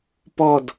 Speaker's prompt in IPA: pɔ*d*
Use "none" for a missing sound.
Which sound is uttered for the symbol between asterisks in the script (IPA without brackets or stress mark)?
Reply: d